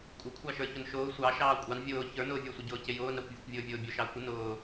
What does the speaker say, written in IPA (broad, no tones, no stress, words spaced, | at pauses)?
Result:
kʷʼɪkʷʰɑʃə˞ çʊnʃʊː sʷɑ ʃɑːkʷʼɑn vʲʊː çə˞nʊːvʲə˞sʷə ɟʊːcɪjʊːnɾɑkʷ vʲʊkʷvʲʊːvʲʊːbʲʊ ʃɑə̯kʷə nʊː